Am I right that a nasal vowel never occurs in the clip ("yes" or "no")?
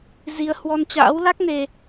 yes